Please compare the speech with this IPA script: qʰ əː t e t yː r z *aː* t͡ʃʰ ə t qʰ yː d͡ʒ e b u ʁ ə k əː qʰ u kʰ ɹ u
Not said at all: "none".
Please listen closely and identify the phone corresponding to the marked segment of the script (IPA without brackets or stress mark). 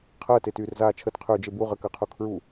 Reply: aː